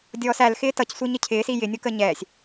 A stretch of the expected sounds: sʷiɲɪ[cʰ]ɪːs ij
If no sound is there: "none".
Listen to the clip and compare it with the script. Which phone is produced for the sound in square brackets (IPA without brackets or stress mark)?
cʰ